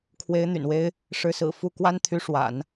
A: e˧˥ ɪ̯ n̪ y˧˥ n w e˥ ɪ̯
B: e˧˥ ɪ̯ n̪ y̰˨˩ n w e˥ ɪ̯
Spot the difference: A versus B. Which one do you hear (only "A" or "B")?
B